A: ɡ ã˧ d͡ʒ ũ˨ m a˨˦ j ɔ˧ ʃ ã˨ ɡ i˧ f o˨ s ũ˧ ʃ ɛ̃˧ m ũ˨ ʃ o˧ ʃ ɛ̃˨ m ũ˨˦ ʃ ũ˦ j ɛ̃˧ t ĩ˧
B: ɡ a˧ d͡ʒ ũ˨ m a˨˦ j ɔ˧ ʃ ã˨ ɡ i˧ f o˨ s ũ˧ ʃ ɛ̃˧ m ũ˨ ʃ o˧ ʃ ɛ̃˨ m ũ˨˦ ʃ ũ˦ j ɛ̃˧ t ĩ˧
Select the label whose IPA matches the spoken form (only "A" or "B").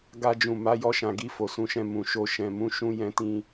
B